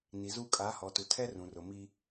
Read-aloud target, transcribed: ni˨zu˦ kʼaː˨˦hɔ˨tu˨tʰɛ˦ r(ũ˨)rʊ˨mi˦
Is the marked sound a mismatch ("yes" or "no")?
no